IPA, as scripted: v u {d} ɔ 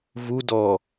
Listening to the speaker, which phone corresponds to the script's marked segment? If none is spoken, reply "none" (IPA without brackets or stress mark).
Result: d